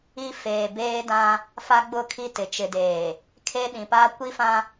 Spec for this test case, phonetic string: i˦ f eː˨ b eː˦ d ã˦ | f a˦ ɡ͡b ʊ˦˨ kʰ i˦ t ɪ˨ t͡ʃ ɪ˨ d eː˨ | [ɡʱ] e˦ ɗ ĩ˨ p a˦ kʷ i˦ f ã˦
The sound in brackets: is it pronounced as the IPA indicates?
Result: no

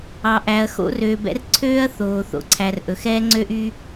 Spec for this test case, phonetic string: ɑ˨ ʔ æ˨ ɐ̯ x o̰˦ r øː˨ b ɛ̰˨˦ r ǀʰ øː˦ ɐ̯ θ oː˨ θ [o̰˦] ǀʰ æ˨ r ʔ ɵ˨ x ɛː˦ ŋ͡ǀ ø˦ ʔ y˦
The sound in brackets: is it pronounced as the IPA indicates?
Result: no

